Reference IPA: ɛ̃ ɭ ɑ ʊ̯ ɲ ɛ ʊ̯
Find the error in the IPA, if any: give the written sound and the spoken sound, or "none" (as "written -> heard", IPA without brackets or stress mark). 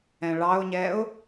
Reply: none